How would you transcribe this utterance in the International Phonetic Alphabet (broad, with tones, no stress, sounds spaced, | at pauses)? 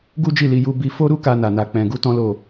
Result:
ɡ u˦ d͡ʒ i˦˨ l i˧ j u˦ b i˦ f o˦ ɾ u˦ k a˦ n a˧ n a˧ k͡p ɛ̃˧ ɡ u˦ t ɔ̃˦ l o˦˨